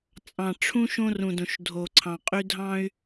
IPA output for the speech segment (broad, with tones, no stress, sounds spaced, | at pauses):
t͡sʼ ɑ̃˨ ʈ͡ʂʰ ũ˦ ʃ õ˦ r ũ˨ d õ˨ ʃ dʱ o˨ ǀʰ ɑ̃˨ qʼ y˦ dʱ ɑ̃˦ y̯